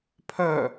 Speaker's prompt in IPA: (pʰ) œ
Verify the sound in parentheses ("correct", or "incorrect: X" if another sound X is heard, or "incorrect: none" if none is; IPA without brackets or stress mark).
correct